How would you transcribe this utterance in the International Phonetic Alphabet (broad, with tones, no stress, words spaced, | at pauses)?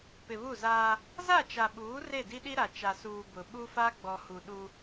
pɪ˨βu˦˨zaː˦ | za˦˨t͡ʃa˨ɓuː˨˦ re˦˨di˦ɗi˦ɾa˨ t͡ʃa˨suː˨ bʊ˨ ɓu˦fa˦ɡ͡bɔ˨hu˨ ɗu˦